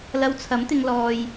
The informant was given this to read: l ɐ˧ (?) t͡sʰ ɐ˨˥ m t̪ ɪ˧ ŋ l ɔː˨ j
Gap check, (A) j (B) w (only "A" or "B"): B